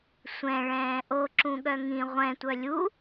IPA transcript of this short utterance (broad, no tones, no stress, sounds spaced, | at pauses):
sʷ ɛ̃ ɭ ɛ̃ː ʔ o ǁ ũ ɠ œ ŋ ĩ ʁʷ ɛ̃ tʷ œ lʲ u